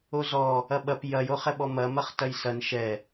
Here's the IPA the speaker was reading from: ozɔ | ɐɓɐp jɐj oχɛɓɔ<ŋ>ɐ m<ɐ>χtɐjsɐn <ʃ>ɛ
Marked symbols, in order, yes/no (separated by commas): no, yes, yes